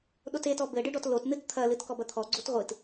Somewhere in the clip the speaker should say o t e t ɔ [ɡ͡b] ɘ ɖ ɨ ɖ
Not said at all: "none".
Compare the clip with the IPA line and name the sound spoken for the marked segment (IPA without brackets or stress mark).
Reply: b